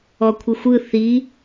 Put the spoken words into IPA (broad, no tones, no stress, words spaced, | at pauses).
ɔkʷʰɯxʷɯ θi